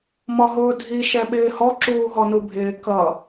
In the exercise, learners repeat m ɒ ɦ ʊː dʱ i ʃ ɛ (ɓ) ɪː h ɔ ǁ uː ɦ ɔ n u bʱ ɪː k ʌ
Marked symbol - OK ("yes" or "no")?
yes